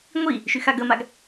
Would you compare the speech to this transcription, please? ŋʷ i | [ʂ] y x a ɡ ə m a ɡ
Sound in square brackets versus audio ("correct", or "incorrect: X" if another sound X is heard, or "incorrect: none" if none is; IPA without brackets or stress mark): incorrect: ʃ